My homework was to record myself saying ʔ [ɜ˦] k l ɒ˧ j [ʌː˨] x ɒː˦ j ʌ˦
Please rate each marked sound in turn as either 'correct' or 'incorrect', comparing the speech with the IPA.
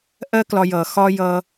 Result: correct, correct

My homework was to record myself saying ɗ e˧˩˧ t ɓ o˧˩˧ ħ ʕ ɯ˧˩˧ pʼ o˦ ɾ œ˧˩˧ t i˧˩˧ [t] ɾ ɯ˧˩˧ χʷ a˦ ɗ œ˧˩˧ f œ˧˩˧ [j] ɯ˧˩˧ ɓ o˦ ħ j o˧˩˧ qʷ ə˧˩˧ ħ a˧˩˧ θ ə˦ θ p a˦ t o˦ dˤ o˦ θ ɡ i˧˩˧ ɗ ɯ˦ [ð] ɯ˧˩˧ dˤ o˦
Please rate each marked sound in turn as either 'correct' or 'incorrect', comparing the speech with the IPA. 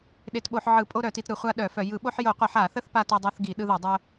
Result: correct, correct, correct

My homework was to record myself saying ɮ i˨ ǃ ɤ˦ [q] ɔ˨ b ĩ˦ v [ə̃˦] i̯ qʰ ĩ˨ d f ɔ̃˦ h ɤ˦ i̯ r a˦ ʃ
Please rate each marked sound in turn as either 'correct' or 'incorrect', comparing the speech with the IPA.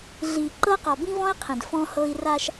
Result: correct, incorrect: ɔ̃˦

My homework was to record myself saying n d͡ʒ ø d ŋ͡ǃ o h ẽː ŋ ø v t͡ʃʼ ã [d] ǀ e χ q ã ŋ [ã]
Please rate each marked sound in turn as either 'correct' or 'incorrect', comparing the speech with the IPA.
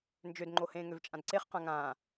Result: correct, incorrect: ãː

